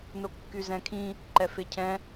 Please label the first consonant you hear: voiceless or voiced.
voiced